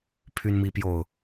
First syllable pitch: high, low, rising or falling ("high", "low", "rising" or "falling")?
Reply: high